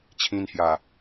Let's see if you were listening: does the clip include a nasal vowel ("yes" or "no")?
yes